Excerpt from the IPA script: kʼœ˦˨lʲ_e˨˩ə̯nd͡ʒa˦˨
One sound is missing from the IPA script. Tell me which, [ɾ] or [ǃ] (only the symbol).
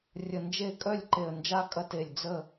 ǃ